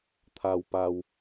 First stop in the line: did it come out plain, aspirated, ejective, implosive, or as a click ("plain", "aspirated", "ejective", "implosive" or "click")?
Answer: aspirated